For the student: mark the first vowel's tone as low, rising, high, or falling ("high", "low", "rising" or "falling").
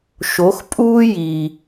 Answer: rising